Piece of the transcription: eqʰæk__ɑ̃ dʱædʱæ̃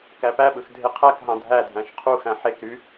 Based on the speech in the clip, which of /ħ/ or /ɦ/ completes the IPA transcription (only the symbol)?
ɦ